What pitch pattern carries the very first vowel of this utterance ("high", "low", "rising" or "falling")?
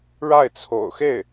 falling